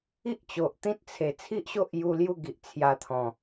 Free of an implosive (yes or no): yes